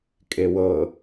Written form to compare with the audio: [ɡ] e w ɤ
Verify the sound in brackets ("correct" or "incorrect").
incorrect